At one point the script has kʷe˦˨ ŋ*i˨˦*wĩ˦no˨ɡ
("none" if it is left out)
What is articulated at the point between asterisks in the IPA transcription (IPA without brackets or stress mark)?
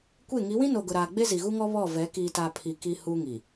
i˨˦